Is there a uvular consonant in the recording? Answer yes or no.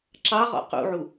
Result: yes